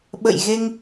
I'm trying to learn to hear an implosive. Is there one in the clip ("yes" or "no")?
yes